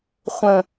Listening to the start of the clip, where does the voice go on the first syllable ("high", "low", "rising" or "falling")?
low